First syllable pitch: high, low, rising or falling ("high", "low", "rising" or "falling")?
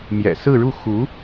low